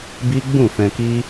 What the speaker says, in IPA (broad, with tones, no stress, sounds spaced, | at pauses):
b i˦ ɡ͡b ũ˦˨ f ɛ̃˧ k i˦